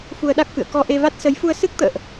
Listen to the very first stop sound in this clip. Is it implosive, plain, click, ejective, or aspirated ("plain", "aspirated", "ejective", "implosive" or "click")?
implosive